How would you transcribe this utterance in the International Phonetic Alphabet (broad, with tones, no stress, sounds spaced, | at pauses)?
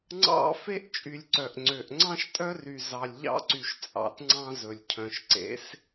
ŋ͡ǀ ɑ̰˦ f e˦ ʔ t͡ʃʼ y˨ lʲ ǀ œ˨ ʔ ŋ͡ǀ ø˨ ʔ ŋ͡ǀ ɑ̃˦ ʃ tʼ œ˦ r y˨ z ɑ˨ lʲ ʎ ɑ̰˦ ǀ y˨ ʃ t͡sʼ ɑ̰˨ t ŋ͡ǀ ɑ̃˦ z ɵ˨ lʲ cʰ œ̃˨ ʃ ǀ ḛ˨˦ s